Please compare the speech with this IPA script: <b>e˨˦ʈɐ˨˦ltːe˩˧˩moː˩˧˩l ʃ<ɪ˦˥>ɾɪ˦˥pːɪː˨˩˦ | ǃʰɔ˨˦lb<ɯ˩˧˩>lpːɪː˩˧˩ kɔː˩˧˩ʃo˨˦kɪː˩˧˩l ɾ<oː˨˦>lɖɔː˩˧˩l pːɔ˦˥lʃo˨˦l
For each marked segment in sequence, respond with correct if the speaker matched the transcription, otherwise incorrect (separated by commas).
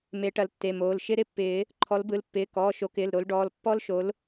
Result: incorrect, correct, correct, incorrect